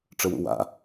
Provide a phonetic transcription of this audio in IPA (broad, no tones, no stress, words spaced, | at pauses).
ʈ͡ʂəwṵwa̰